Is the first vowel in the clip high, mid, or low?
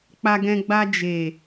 low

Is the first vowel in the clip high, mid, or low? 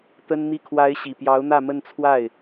mid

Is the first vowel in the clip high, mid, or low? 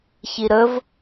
high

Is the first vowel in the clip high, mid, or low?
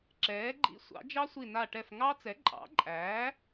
mid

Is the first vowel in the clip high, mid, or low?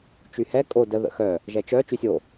high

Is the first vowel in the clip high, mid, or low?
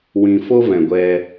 high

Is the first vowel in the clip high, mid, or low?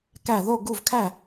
low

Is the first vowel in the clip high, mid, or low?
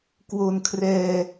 mid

